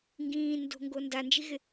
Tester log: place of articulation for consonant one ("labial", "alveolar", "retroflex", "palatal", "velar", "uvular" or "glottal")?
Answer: velar